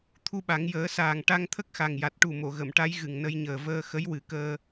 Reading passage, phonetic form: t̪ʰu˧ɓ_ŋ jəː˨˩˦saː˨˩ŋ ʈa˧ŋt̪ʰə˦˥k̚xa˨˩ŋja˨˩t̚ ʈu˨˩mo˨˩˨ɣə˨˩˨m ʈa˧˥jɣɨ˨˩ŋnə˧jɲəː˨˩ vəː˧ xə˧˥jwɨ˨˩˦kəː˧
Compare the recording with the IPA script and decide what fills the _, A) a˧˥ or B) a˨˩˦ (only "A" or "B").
B